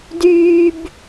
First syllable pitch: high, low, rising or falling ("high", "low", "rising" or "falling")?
high